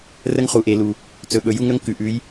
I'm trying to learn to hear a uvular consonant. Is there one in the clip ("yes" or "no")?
yes